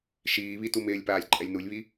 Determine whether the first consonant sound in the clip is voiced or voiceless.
voiceless